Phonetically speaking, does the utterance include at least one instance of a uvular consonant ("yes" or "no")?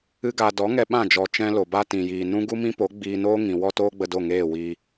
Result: no